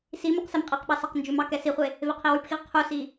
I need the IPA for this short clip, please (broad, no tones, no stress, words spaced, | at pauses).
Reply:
si mʉqsɛmqʼeqɓɑ sɑqnd͡ʒʉmɑ kɛsiχʷe | veqʰiwʉpxiʁ qʰusi